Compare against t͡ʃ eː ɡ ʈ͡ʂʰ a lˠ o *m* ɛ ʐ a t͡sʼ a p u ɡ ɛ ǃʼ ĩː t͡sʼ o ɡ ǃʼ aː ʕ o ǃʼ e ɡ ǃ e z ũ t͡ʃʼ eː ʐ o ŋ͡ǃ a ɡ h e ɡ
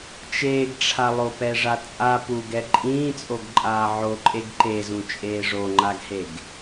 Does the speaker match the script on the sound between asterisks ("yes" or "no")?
no